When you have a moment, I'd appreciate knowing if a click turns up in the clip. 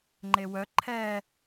yes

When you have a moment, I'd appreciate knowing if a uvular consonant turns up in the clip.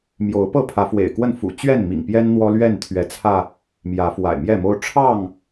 no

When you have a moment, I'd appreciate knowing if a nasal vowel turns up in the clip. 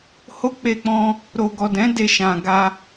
yes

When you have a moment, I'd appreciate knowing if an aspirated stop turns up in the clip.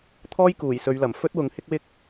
yes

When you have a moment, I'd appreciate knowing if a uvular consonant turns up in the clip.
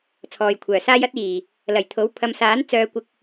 no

